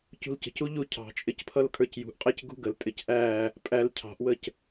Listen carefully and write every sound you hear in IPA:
c ṳ l c ə̤ c u ʎ u cʰ ɑ̤ t͡ʃʼ ɪ c pʰ ʌ l kʰ ə˞ c j ṳ ʔ qʼ ɛ c ɡ ṳ ɡ ə l tʼ ɪ c ʔ æ | pʼ æ l cʰ ɑ̤ ʔ w ə c

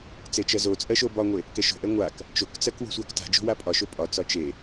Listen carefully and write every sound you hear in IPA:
t͡s e t͡ʃ ɜ z o t͡sʼ ɜ ʃ o b ɒ ŋʷ e | k ɛ ʃ o̤ ʔ ɛ ŋʷ a k | t͡ʃ o k t͡s ɜ k w o̤ sʷ a k t a̤ d͡ʒ o̤ w a pʼ ɒ ʃ o pʼ ɒ t͡s ɒ t͡ʃ e

